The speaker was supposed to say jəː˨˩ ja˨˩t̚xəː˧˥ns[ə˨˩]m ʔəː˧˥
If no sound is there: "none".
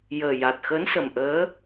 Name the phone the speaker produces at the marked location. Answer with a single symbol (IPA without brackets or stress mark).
ə˨˩